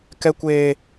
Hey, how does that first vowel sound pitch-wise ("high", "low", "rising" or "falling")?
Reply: high